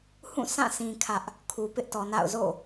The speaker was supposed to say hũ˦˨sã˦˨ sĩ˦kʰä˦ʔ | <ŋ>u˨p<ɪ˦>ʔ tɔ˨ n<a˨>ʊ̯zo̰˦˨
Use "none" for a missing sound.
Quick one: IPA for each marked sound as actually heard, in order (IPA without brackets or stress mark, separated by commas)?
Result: kʰ, ɪ˦, a̰˦˨